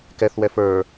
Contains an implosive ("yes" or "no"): no